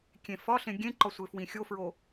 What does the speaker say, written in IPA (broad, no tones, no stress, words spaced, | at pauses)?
kʲẽfɒɬẽ ɡʲẽǃɒ sʷefwĩxʲofɹo